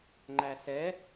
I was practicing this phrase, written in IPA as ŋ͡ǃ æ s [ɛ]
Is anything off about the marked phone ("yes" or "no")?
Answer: no